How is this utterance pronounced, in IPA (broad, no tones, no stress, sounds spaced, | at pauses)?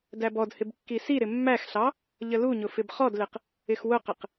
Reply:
d æ b ɔ d h ɪ b kː i s i ɾ ɪ mː æ x ɬ ɑ | ʎ ə l u ɲ ʊ f ɪ b χ ɔ d l ɪ q | ɪ x w ʊ q ɪ q